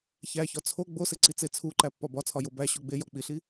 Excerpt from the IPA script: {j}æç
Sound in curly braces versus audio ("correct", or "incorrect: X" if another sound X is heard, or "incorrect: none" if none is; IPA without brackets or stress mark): incorrect: ç